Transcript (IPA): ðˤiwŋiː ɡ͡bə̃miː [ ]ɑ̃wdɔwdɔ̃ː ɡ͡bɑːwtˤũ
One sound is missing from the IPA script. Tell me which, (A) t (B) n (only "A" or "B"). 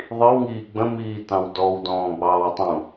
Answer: A